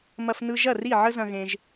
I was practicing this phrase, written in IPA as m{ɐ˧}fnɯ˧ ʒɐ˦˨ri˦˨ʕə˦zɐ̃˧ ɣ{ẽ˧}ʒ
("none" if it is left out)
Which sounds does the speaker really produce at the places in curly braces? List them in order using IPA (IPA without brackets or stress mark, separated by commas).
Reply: ɐ˧, ẽ˧